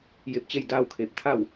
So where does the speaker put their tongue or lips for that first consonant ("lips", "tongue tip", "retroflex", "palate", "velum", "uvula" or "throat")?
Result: palate